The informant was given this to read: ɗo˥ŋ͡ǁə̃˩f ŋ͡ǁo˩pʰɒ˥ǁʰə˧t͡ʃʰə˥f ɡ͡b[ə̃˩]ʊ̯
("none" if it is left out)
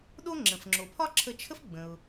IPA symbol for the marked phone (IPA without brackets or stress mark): ə̃˩